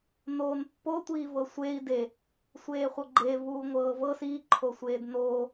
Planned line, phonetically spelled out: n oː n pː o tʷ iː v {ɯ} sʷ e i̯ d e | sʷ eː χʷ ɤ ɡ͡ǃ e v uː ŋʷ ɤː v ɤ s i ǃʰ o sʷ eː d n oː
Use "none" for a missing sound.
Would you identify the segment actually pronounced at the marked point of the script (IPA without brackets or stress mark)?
ɤ